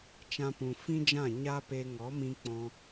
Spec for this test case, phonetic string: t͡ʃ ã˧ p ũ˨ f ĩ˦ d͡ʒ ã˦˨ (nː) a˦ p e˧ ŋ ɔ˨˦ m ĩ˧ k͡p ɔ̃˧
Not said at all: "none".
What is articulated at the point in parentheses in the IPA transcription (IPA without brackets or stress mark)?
ɲ